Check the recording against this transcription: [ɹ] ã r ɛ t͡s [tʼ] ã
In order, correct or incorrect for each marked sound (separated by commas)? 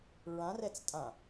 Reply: correct, correct